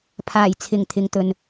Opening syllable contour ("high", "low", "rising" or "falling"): low